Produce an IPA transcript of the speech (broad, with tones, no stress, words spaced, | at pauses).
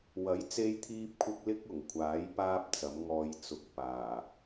wɐ˨˥jt͡se˧jt̪ʰiː˧p̚kʷʰɪ˧k̚ lɪ˥k̚ʊ˨˩ŋkʷʰaː˨˥j paː˥p̚t͡sɐ˨˥mŋɔː˧j t͡sʊ˧k̚paː˨˩